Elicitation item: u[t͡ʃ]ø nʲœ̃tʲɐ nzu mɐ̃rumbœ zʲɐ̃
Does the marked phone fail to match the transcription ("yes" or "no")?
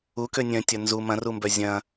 yes